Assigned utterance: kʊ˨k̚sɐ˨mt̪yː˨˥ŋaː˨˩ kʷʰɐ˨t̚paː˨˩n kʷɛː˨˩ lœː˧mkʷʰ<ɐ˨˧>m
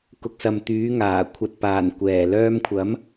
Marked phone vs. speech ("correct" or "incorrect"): incorrect